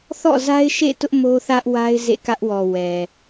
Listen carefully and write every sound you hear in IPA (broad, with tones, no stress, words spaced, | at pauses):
θɔ̰˦˨za˦ɪ̯ʃḛ˦˨tʊ˦ʔ mo˦θä˦ʔwa˦ɪ̯ zḛ˦˨kä˦ʔwɔ˨ wɛ˨